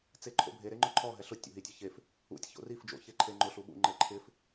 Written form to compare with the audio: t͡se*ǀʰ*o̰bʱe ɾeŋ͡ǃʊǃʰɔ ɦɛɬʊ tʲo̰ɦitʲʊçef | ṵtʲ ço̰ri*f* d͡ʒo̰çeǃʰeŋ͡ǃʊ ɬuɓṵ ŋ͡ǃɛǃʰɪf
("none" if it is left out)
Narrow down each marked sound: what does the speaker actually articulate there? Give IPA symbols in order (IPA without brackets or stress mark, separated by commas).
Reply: ǃʰ, f